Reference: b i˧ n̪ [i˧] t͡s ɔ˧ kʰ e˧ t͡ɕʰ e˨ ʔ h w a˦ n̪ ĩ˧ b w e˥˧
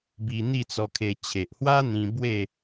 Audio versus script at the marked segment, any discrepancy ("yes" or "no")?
yes